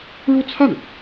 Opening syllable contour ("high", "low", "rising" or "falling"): falling